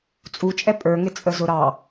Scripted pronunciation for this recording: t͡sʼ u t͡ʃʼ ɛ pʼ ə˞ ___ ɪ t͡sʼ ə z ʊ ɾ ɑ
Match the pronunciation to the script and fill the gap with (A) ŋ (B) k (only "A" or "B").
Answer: A